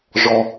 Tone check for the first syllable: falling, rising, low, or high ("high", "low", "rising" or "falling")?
low